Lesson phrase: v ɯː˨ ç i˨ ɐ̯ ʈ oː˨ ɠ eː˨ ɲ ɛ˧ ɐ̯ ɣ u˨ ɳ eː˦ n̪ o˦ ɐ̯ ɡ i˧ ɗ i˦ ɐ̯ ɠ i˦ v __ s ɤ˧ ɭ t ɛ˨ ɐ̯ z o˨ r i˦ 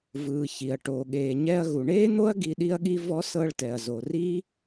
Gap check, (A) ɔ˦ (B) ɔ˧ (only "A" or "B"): A